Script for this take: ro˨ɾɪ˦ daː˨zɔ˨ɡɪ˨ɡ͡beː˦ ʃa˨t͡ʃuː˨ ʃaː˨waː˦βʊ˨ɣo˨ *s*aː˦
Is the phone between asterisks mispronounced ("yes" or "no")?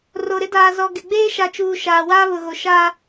yes